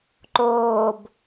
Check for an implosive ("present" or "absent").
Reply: absent